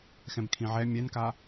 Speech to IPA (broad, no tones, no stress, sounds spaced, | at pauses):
x ɛ̃ b kʰ ĩ ʕ ɛ mʲ ɛ n k a